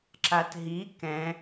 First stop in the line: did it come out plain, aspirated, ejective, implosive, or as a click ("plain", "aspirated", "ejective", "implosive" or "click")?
click